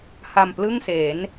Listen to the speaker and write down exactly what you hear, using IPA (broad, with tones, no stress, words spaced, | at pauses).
ha˧mplɯ˥˩ŋse˩˦n